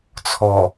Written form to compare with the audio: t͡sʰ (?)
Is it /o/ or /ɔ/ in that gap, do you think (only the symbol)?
ɔ